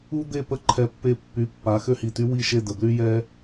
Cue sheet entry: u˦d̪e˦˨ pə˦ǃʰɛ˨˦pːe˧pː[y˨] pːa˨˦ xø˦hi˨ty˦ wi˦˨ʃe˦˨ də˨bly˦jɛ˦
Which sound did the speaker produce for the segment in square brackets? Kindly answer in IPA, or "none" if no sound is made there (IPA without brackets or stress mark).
y˨˦